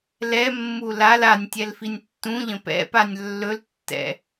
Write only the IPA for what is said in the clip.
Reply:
lɛmːu lal anʲ tʲɛlfinʲtːũʎə̃ pɛ̰panʲ lːɵltːɛ̰

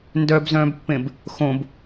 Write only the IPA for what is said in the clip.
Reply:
ndœbzœ̃ːbpːẽb | xõb

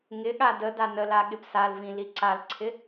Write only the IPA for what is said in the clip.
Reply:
ŋɪɠa dəda nəla ɠɪpsalvĩ liǀalǀʰɪ

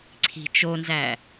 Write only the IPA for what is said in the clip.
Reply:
ǀʰi̤ t͡ʃonzæ

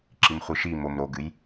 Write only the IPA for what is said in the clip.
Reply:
ǁimχʷɨʃimom ɾoɡɨj

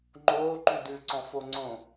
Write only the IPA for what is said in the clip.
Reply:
ŋ͡ǃoː ǃʉdʉ ǀɔ̃foŋ͡ǀõ

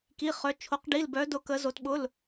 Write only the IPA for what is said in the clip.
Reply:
ki˩˧˩χœ˩˧ t͡ʃʰo˩˧qɖi˩˧˩lbœ˩˧dʊ˩˧ kə˩˧zo˩˧t ɓʊ˩˧˩l

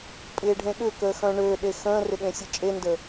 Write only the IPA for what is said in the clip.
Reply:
pʼɪːɖʱẽɠʏkəː xœ̃ɳøɗe xə̃ːrɪ ɠẽsʲɐt͡ʃʼendə

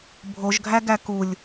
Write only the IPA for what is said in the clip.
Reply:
bʱoʒɡʱæɡæ kulʲ

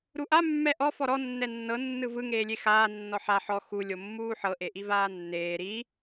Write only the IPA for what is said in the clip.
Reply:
ɾuʔa mːɛʔɔ fɔɾɔ nːɛnːɤ nːɯvɯ ŋeːlʲexaː nːɔħa ħɔ xu lʲomːuːħɤ ʔeʔivaːnːeː ɾi

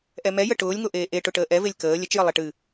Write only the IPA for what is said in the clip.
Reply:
ʔɛmɛjə ʈʊːlʲŋoʔeː ʔeʈʊʈəː ʔɛvelʲ kəː lʲət͡ʃjə lˠeʈɨ

